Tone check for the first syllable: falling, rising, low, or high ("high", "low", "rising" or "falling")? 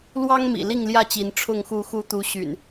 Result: high